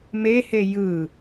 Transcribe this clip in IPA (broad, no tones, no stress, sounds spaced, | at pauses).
m e h e j ɯ